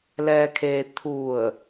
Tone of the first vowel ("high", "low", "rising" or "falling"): low